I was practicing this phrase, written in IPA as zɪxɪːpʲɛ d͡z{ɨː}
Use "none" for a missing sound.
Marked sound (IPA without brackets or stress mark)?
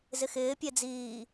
iː